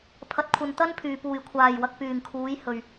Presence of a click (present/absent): absent